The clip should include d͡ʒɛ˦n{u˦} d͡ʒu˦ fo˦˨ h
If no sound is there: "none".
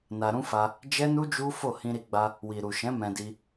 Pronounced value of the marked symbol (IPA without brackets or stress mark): u˦